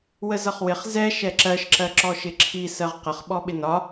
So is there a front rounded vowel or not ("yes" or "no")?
no